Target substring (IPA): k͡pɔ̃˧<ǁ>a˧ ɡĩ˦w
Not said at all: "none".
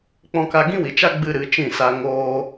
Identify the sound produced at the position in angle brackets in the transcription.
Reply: k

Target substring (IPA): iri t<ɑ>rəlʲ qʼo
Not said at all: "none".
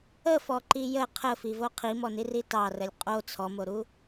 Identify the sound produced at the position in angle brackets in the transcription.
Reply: ɑ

